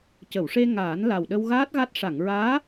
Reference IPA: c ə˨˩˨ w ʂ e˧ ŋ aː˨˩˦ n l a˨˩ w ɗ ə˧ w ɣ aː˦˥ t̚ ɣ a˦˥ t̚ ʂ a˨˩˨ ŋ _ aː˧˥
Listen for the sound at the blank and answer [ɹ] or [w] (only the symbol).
ɹ